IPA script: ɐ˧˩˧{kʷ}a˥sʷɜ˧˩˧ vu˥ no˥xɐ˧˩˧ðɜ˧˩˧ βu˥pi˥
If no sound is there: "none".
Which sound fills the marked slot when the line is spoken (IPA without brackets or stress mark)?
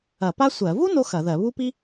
p